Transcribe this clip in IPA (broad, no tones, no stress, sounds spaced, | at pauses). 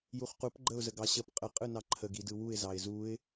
j u χ q u p ɡ͡ǃ ə ʊ̯ z ə ɡ ɑ ɕ ə p qʼ ə qʼ ɯ n ɑ ǃʰ ə ɡ i d ɯ w u ɪ̯ z ɑ ɪ̯ z u ɪ̯